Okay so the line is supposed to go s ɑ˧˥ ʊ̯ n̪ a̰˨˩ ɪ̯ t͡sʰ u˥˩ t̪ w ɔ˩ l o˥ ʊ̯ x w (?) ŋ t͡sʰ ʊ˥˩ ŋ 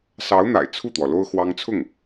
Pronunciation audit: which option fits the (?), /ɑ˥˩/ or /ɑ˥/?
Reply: ɑ˥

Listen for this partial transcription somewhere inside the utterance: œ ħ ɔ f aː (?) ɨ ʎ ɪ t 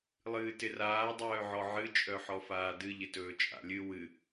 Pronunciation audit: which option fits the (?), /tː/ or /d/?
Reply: d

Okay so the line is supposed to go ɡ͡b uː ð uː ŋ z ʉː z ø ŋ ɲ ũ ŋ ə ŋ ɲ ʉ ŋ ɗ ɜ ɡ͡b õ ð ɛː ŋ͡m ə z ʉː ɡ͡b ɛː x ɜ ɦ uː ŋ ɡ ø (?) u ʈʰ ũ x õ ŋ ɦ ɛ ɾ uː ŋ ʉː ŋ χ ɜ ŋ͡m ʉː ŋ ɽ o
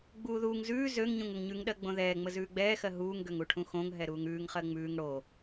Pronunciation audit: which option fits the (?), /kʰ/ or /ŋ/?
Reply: ŋ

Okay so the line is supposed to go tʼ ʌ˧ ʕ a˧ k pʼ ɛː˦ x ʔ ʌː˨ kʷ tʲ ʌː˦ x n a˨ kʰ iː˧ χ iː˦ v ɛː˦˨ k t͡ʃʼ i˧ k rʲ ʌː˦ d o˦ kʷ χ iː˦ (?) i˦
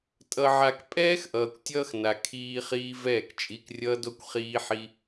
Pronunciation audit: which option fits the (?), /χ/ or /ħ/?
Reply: ħ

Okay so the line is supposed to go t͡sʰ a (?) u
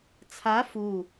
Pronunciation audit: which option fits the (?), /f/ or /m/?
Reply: f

